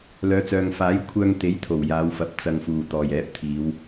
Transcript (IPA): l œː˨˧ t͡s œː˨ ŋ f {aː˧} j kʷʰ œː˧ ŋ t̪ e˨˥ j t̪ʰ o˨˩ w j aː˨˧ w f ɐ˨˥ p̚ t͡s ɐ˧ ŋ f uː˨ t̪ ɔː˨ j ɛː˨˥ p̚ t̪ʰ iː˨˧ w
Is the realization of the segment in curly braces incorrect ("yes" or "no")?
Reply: yes